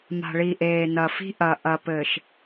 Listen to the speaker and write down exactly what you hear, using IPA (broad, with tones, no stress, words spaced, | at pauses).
ma̤˨ɭi˨ʔeː˨ nɐ˨fi̤˦ʔɐ˨ ʔɐ˨pɘː˨ʃ